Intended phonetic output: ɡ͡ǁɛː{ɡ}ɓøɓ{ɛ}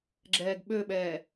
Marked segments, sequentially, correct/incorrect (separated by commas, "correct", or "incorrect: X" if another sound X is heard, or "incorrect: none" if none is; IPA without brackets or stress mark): correct, incorrect: ɛː